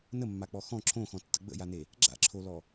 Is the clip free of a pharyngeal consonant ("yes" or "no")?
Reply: yes